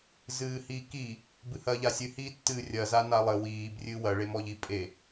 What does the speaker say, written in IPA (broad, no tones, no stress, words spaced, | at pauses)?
zɨːhiːkiː | bɨhɐːʎasʲɨ hiːtːɨːrʲɐ zanalˠɘ wiːb rʲɨwɐ ɭemɔʎi pʼe